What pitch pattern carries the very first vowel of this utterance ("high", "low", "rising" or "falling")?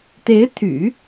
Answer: rising